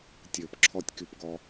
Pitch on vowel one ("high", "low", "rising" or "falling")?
low